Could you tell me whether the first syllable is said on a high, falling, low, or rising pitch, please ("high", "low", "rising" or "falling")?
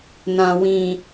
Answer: low